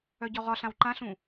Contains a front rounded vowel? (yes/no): yes